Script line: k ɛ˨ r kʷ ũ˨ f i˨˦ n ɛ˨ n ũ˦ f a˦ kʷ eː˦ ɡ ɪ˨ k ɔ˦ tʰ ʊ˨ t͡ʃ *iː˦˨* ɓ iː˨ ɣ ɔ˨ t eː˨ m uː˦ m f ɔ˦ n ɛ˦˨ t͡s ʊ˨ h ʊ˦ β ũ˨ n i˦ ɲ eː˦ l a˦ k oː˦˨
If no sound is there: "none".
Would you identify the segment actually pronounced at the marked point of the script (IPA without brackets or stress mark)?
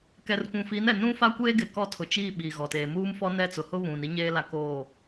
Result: iː˦˨